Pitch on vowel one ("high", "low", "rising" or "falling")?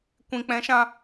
low